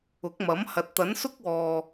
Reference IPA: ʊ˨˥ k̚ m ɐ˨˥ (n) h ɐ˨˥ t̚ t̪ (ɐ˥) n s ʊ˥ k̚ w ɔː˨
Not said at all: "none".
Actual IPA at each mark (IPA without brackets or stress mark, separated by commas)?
m, ɐ˨˥